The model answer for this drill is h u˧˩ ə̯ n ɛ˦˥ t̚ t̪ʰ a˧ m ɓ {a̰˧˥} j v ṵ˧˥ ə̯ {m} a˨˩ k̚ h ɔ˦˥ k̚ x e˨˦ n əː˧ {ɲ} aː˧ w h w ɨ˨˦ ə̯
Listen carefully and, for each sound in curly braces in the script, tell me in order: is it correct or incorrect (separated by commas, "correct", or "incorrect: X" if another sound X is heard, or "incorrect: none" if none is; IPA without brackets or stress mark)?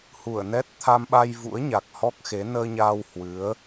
incorrect: a˧, incorrect: ɲ, correct